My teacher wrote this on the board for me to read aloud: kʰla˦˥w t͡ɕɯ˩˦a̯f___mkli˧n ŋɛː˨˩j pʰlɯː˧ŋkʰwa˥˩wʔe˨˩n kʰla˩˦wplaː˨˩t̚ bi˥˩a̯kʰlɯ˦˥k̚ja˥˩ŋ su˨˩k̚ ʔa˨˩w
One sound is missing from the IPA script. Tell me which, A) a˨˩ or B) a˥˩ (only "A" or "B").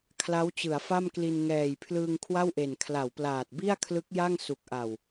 B